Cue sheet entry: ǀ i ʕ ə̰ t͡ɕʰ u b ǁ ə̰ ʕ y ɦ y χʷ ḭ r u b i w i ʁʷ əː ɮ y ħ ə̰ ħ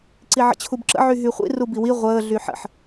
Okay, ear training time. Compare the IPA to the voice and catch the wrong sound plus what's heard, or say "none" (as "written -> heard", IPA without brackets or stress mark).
none